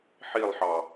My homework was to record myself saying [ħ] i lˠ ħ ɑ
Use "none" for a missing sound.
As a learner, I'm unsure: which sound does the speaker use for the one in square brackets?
ħ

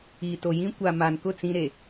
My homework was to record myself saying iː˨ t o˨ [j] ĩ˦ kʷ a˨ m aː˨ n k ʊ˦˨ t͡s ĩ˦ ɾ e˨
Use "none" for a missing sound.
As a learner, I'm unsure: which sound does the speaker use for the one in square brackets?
j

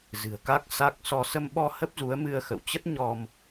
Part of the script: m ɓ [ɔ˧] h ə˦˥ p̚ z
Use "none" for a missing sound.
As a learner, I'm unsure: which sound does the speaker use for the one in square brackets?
ɔ˧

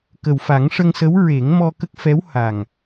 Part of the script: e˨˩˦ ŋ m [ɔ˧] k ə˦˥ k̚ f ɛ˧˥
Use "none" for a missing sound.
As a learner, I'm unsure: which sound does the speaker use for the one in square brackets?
ɔ˧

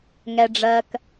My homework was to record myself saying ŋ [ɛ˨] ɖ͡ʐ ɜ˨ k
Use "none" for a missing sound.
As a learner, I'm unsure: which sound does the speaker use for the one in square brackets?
ɛ˨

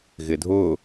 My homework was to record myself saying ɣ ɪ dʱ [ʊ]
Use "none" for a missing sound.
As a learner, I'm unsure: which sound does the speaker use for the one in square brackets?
ʊ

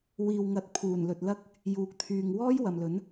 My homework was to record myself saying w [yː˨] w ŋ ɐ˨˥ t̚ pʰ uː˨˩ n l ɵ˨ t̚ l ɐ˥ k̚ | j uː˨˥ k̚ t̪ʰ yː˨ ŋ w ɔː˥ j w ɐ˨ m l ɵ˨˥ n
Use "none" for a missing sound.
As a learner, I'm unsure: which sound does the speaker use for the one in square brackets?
iː˨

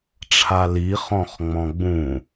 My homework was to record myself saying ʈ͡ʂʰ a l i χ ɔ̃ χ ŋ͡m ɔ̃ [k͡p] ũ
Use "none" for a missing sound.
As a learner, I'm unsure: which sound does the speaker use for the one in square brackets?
ɡ͡b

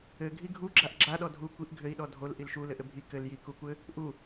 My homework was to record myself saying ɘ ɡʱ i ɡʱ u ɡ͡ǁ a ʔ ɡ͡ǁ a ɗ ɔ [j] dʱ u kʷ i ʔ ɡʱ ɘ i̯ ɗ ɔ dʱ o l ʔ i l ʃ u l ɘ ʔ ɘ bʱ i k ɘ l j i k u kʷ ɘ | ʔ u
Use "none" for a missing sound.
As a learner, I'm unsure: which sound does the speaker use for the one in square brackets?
none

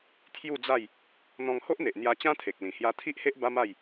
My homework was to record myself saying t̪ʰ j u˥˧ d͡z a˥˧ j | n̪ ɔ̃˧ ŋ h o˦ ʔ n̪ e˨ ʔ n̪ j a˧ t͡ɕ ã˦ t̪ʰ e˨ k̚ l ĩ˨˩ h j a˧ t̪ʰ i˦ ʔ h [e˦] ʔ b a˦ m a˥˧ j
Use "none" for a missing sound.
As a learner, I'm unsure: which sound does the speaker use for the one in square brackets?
e˦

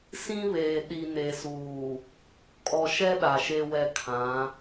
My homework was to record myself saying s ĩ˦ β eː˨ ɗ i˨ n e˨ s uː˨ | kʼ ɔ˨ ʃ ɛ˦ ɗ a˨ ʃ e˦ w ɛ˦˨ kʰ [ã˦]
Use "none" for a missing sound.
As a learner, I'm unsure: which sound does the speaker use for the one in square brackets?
ã˨˦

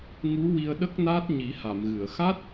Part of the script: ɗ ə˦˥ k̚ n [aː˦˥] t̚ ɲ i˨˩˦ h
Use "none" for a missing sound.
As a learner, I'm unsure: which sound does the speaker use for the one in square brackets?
aː˦˥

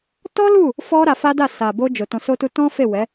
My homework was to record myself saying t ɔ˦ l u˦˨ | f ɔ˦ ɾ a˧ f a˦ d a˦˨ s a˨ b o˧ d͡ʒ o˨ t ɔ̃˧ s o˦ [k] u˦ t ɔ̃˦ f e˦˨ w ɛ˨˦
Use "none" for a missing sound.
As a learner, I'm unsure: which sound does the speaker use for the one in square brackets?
t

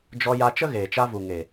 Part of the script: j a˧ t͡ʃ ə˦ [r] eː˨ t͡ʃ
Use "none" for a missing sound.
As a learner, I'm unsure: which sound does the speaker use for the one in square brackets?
ɣ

